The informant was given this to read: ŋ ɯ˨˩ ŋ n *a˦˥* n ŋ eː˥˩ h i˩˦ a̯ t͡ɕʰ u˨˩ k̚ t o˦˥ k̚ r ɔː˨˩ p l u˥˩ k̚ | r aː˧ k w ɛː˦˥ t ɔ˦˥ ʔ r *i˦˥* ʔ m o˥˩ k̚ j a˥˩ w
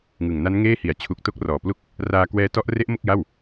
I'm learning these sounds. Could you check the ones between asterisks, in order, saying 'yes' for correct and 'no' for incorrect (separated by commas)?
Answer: yes, no